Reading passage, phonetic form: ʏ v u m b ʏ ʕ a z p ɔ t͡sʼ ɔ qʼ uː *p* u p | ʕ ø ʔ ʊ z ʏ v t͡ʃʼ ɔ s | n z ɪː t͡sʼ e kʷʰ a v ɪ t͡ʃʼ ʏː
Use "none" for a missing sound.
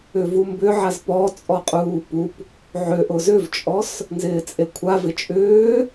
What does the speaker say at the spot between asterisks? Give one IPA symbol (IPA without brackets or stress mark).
p